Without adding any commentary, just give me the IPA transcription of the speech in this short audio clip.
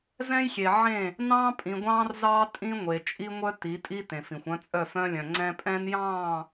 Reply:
z ɛ̃˦ j xʲ e˨ ʕ ẽ˦˨ | n ɑ̃ː˦ pʼ ĩ˨ ɡʷ ɑ̃ː˦ r z ɑː˦ tʼ ĩ˦ ŋʷ e˨ t͡ʃʼ i˦ ŋʷ œ˦ t i˨˦ tʼ i˦ t ẽ˨ f ĩ˨ xʷ œ̃˦ t͡sʼ œ˦˨ f œ̃˦ lʲ œ̃˨ ŋ͡ǀ ɛ̃˦ pʼ ɛ̃˦ n j ɑ̃ː˦˨

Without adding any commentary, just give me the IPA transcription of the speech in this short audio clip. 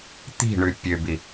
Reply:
t̪ i̤ ɳ ʉ pʲ ø b i

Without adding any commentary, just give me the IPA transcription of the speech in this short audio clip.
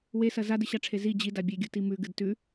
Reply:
w e s ɐ z a d ɨ ɕ a ʈ͡ʂʰ e z i d͡ʑ i d a bʲ e ɡʲ u t i m ʉ ɡ ɨ d t ʉ

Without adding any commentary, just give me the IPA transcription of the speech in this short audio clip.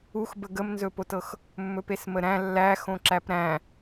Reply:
u x b ə ɡ ə m n z ɵ p o t ɤ x | mː ɵ p e s m ə ɾ æ̃ lː æ x õ ǁ æ p ɾ æ̃

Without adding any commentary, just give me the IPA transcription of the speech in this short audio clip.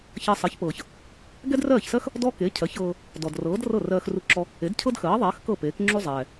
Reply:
ç ɜ˧ sˤ ɜ˩˥ ç p ɤː˩ ç | ɡ ɛ˥ d r ɜː˥˩ ç s ɜ˥ x | d ɔ˥ k e˩˥ cʰ ɜ˩˥ ç ɤː˧ | d ɔ˩ d r ɤː˩˥ d r ɤ˥˩ r ɜː˧ x r u˧ ǁ ɔ˧ | e˩˥ d cʰ ɤ˥ d x ɜː˩˥ ðˤ ɛː˩˥ x k ɤ˥˩ p eː˩˥ k ŋ͡ǁ u˥ zˤ ɛː˩

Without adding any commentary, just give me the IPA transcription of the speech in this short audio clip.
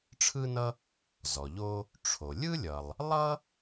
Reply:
ʈ͡ʂʰ ɯ˥ n ʌ˥ | z ɔ˩ ʎ o˥ | ʈ͡ʂʰ o˩ lʲ ɯ˥ lʲ ʌ˩ lˠ | lˠ ʌ˥

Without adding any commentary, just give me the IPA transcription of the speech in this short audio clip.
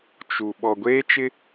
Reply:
t͡ʃ u˨ ɓ ɔ˨ ɡʷ eː˦ t͡ʃ ɪ˦

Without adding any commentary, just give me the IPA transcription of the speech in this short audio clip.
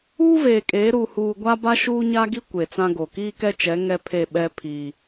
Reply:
uː˦ v eː˨ kʼ eː˨˦ ɾ uː˨ h uː˨ ɡʷ a˦ b a˦ ʃ uː˦ ɲ a˦ ɡ i˦ kʷ e˨ t͡s ã˦ ɡ o˨ k iː˦ k ɛ˦ t͡ʃ ɛ˨˦ ŋ ɛ˦ pʰ e˦˨ ɓ ɛ˦ pʰ i˨

